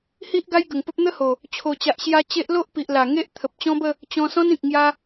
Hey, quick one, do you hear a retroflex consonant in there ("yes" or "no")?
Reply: no